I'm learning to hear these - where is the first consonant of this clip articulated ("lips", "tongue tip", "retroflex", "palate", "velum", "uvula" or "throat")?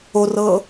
tongue tip